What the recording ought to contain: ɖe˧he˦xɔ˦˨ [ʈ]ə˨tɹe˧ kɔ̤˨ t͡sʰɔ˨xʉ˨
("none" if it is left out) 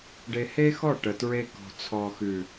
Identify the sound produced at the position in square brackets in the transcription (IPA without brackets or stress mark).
ʈ